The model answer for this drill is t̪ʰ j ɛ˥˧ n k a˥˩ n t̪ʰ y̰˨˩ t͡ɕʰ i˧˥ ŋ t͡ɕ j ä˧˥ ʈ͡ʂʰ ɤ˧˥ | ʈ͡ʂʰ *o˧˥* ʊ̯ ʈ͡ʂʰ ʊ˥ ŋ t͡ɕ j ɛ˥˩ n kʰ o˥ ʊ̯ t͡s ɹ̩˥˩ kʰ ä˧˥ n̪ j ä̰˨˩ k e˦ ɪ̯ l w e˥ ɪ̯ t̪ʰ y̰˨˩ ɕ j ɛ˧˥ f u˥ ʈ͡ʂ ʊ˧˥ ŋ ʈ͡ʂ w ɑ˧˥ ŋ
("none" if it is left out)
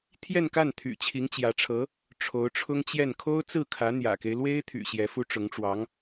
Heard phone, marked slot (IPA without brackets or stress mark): o˧˥